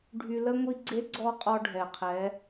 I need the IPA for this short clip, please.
ɖʱ y˧ l ə˥ ŋʷ i˧ ɡ͡ǀ e˧˥ ɡ͡ǀ ɔ˧ qʼ ɔ˧ ɖʱ ɛ˩ qʰ ɛ˩˧

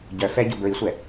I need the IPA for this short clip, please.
ɟ œ f ɛ ɟ u b ɹ i sʷ ɛ

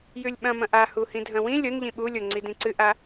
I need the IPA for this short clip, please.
j ʉ lʲ ɓ ɐ̃ m ɐ̃ ʔ a h u h ĩ dʱ ɐ̃ w ĩ lʲ o n ʎ ĩ ɓ u lʲ o ŋ͡ǀ i d ĩ ǀ ɨ ʔ a

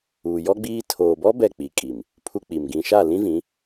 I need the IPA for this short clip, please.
uː˨ j ɔ˦ ɡ͡b iː˦ tʰ oː˨ b ɔ˦ b ɛ˦˨ k͡p i˨ kʼ i˨ m | pʰ u˦ k͡p i˨ m ɡ ĩ˨ ʃ a˦˨ l ĩ˦ v ĩ˨˦

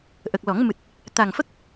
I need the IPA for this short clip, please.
ʔ ə˨˩ k̚ l ɔ˨˩˦ ŋ m ɨ˨˩ t̚ | t̪ a˨˩ ŋ f ə˦˥ k̚

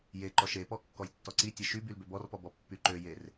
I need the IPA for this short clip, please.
j e ǃ ɔ ʃ e p ɔ kː ɔ j tː ɔ ǀ i tʲ e ʃ y b y l b ø b ɔ r p ɔ b ɔ pː y ǃ ø j e r

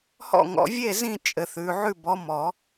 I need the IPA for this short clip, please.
h ɔ̰˥˨ ŋ ɔ̰˨˦ vʲ e˥˨ z ĩ˥˨ t͡ʃʼ ɘ˨ θ ʉ˨ ʕ ʉ˥˨ b ɔ˨˦ m ɔ˨˩˦

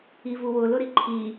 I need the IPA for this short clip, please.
i v u w ʊ l ʊ ɾ i ǃʰ i

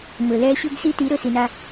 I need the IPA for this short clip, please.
m ɵ˨ l ɛ˦ ɕ ɵ˦ ɡ s i˦ t i˨˦ ɾ ɵ˨ s i˨ n a˦

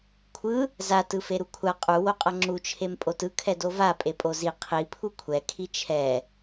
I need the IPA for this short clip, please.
kʷʰ ɯ | z a t ɯ f e ɾ u kʷʰ a qʼ u w o qʼ ʌ ŋ͡ǁ u t͡ʃʰ e m pʼ o t ɯ kʰ ɛ d o v a pʼ e pʼ o z i qʰ i pʰ u kʷʰ ɛ kʰ i t͡ʃʰ ɛ

